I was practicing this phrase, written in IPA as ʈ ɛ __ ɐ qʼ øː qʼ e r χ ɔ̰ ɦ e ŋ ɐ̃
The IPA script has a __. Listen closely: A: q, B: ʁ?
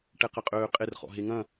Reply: A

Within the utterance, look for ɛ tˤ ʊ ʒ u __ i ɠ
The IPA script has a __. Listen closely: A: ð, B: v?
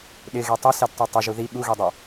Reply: A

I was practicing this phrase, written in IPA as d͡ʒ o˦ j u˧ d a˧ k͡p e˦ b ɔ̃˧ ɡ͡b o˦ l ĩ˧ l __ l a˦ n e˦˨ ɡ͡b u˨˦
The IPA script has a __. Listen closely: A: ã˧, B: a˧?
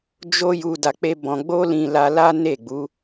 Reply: B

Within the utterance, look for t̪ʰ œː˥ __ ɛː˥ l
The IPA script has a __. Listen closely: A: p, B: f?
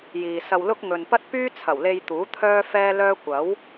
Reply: B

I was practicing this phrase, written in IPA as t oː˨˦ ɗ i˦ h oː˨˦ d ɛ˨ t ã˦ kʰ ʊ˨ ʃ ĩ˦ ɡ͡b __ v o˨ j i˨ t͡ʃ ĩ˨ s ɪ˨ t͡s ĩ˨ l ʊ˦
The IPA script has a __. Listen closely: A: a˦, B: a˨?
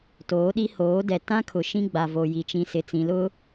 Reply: B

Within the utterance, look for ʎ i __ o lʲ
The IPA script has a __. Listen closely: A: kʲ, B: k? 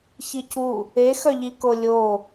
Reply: B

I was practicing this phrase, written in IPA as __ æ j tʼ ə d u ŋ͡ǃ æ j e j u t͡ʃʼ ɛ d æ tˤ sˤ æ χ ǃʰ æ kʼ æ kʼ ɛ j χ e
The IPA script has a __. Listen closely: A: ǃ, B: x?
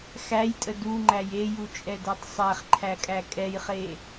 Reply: B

